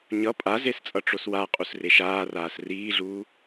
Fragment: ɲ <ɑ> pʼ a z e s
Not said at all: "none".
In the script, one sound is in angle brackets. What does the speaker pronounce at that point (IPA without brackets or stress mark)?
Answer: ʌ